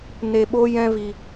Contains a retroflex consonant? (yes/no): no